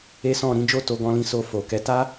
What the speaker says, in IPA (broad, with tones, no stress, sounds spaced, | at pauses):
e˦ s ɔ̃˦˨ ɾ ĩ˨˦ d͡ʒ o˦˨ t o˨˦ ɡ ɔ̃˧ l ĩ˧ s o˧ f o˨ k ɛ˨˦ t a˦